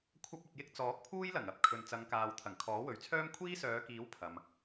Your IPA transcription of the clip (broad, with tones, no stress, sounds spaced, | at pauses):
kʷʰ ɐ˥ p̚ ɵ˧ t̚ j ɪ˥ k̚ t͡s ɔː˨˥ k̚ pʰ uː˥ j l ɐ˨˩ ŋ ɐ˨ p̚ kʰ ɵ˨ n t͡s ɐ˨˧ ŋ k aː˨ w t̪ʰ ɐ˨˩ ŋ kʰ ɔː˨˥ w ɵ˨ ɥ t͡sʰ œː˥ m kʷʰ iː˥ s œː˨˧ k iː˨˥ w pʰ ɐ˨ m